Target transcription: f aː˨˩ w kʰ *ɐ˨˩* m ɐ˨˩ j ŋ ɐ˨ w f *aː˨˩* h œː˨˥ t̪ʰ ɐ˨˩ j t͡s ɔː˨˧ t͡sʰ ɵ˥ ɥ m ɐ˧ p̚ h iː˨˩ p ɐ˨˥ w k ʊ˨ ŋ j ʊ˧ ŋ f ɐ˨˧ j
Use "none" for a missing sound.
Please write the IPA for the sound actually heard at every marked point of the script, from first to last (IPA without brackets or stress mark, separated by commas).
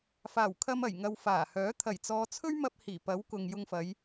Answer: ɐ˧, aː˨˩